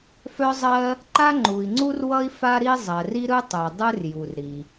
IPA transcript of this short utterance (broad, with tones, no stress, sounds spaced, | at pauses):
f œ˥ zˤ ɜ˥ | ǃ a˥ ŋ͡ǃ u˩ i̯ ŋ͡ǀ u˥ r w ʌ˥ i̯ f a˥ ɾ i˥ zˤ ɜ˩ r i˥ ɾ ɯ˥ tˤ œ˩ dˤ ɯ˥ r j u˩ r ɾ i˩